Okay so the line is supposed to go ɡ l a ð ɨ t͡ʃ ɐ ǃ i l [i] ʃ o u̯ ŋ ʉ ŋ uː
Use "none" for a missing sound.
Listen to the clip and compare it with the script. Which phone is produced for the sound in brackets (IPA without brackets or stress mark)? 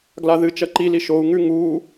i